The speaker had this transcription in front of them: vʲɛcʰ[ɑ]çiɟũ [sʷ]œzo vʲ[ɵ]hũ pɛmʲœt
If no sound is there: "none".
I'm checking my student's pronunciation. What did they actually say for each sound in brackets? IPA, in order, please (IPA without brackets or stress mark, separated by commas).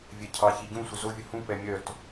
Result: ɑ, sʷ, ɵ